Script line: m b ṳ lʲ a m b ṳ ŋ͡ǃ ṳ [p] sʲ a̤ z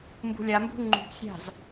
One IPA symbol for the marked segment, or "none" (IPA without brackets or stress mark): p